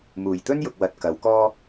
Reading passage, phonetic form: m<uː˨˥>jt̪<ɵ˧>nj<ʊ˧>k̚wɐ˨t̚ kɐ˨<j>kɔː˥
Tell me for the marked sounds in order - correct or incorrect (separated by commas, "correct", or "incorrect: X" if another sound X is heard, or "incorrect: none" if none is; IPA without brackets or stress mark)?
incorrect: uː˨˩, incorrect: ɵ˥, incorrect: ʊ˨, incorrect: w